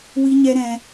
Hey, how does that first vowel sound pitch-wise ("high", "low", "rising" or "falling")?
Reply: high